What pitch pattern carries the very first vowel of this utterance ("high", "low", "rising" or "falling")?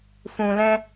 low